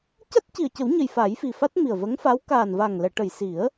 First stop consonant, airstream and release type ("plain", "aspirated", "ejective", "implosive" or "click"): plain